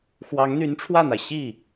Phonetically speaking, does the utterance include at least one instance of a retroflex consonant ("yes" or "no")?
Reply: yes